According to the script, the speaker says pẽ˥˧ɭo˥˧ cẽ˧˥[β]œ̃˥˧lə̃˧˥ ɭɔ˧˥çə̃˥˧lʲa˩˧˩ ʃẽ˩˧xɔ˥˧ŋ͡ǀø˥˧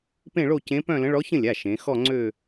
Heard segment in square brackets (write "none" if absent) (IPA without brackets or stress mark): p